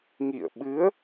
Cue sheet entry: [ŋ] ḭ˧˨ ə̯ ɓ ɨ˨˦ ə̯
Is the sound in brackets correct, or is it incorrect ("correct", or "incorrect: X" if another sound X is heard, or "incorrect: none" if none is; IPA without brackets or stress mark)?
correct